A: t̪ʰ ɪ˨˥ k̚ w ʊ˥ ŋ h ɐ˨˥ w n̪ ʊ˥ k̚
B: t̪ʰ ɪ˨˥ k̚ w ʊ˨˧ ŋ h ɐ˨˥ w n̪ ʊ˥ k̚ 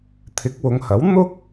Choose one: B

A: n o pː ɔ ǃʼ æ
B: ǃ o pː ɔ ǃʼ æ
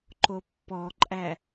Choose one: B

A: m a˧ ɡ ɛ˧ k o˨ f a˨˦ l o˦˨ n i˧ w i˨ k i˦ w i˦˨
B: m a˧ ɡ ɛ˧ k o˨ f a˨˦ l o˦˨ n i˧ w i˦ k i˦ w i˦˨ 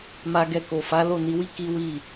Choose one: B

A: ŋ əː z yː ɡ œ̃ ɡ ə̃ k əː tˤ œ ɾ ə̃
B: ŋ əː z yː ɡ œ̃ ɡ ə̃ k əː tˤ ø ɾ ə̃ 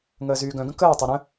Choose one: A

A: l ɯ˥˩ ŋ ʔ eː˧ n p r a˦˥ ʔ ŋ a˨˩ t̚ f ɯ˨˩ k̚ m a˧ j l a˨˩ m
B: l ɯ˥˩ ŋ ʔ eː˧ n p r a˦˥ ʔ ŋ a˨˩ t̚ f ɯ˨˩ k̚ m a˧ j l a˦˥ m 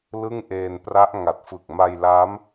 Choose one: B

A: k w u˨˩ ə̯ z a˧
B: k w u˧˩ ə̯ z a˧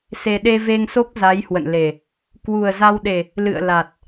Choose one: A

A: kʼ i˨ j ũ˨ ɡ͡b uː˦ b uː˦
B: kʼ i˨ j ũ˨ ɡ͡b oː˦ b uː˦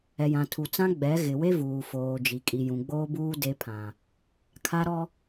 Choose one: B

